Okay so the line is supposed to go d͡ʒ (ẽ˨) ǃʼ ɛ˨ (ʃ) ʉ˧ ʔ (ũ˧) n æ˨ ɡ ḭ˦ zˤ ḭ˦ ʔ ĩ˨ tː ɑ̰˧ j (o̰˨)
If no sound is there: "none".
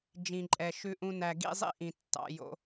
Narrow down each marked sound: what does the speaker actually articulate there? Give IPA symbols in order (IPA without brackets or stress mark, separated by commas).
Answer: ĩ˨, ʃ, ũ˧, o̰˧